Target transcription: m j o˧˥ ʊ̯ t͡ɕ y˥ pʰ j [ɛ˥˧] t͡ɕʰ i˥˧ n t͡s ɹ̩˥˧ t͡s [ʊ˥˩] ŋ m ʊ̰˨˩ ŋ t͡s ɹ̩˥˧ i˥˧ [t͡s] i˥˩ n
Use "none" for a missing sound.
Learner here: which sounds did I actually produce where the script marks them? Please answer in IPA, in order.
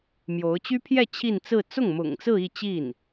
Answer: ɛ˥˧, ʊ˥˩, t͡ɕ

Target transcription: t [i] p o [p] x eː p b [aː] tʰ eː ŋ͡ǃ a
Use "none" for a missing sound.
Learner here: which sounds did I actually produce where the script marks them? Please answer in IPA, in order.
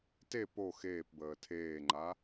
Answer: e, none, əː

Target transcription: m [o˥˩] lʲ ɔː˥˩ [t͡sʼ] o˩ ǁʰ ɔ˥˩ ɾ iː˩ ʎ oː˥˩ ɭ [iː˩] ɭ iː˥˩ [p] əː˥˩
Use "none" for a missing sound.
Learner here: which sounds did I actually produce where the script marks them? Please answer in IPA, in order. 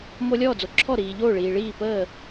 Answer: o˧, d͡z, iː˩, p

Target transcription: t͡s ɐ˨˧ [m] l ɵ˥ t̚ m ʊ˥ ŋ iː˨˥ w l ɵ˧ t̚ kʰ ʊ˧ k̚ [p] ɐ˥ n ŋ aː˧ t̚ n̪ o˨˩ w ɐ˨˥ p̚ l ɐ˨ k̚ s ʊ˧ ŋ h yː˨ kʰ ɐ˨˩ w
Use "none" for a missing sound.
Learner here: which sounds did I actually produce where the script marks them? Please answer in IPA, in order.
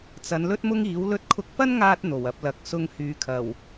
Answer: n, p

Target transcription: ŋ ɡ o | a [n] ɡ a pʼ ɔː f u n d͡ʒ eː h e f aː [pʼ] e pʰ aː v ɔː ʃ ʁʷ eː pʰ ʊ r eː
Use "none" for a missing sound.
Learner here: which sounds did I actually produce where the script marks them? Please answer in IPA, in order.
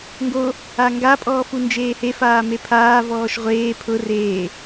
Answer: ŋ, m

